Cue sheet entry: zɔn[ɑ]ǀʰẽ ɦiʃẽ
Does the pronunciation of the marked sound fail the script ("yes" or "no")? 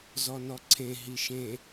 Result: yes